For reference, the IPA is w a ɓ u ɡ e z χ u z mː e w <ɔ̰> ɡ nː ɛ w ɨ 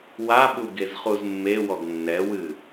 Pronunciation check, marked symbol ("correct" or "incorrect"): incorrect